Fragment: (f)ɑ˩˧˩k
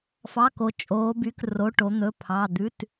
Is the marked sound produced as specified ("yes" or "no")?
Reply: yes